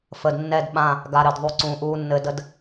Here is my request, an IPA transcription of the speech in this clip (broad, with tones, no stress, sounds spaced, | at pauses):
f əː˨ d nː ɛ˦˨ d ɓ ã˦˨ | ɡ a˨ ɾ ɘ˨ d ðˤ u˨ ǀ ũː˨ ʔ uː˦ nː ɘ˦ d ə˦ d